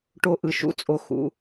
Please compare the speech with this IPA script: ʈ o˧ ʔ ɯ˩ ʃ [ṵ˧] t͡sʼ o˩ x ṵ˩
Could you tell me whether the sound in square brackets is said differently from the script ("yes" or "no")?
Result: no